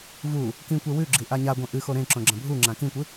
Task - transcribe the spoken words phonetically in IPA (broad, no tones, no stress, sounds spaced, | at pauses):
v u | k ĩ kʷ e w ʉ ɡ͡ǁ i ʔ a ɲ a ɡʷ ɐ̃ ʔ ɨ x o ɾ ẽ ǁ õ ɡ͡ǁ ɐ̃ bʱ u ŋ͡ǁ ã k ĩ kʷ ɨ